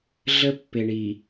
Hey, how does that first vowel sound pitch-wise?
high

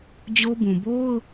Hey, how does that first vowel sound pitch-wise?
high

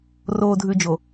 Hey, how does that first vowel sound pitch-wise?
low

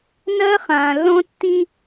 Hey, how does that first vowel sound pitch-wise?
high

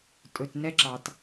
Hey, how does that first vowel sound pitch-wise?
low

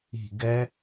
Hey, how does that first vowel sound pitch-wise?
falling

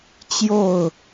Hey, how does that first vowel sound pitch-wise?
falling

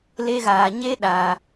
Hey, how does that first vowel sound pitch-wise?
high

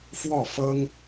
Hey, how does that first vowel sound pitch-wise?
falling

